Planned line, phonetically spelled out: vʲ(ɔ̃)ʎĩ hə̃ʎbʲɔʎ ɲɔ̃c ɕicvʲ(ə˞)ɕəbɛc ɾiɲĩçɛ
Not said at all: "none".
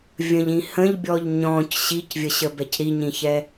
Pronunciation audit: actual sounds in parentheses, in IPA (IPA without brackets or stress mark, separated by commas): ə̃, ə